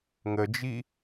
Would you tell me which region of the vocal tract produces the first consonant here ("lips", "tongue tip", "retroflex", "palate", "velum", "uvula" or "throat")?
velum